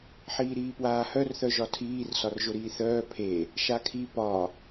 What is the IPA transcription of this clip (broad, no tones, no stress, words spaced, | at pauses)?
ħiːɾiːpwaːhœr θœʒɒtʰiːr sɒrʒʊɾiːθœː pʰe | ʃakʰi pɒ